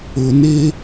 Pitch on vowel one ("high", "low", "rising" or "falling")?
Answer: low